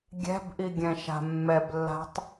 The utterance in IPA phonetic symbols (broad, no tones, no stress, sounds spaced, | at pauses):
ɡʲ ɛ̤ b ʔ i ɡʲ ɛ̃ ʃ a̤ mː ɛ b lː a̤ tˤ